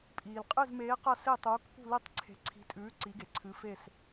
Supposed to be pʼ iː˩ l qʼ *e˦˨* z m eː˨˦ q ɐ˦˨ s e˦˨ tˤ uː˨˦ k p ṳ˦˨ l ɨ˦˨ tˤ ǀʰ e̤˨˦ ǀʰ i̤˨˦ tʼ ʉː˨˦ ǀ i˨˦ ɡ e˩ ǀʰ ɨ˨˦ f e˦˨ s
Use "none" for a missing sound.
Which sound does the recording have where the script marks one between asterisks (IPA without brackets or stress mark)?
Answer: ɨ˦˨